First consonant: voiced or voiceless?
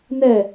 voiced